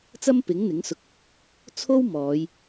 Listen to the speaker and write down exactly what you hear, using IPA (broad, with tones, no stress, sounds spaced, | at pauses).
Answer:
t͡s ɐ˥ m p ɪ˨˥ ŋ n̪ ɪ˨˥ ŋ s ʊ˧ k̚ | t͡sʰ o˥ w m ɔː˨˧ j